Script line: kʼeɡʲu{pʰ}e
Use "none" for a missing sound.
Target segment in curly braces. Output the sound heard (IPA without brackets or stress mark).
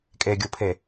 pʰ